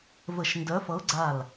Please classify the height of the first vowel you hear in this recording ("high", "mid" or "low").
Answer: mid